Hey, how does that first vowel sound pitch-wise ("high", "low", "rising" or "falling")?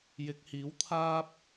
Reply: rising